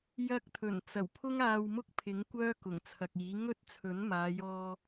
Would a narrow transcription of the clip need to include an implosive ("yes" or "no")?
no